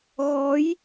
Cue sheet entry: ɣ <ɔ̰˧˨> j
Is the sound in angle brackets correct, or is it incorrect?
incorrect